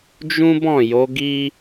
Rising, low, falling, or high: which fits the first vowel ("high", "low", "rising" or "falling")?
high